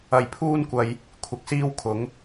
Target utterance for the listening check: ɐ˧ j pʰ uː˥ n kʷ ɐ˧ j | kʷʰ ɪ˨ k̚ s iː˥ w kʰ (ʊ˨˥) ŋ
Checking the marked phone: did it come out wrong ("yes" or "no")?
no